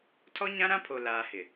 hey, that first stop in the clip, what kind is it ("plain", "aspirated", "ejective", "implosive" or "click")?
aspirated